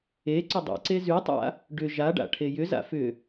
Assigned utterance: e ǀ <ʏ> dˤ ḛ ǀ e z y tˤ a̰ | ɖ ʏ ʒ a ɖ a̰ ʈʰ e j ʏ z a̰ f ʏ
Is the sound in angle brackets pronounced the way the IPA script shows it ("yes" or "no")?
yes